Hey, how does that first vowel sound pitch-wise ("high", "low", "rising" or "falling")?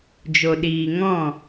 low